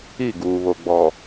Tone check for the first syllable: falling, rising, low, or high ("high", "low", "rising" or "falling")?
falling